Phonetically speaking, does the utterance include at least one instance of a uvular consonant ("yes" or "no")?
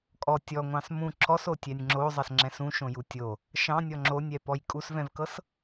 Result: no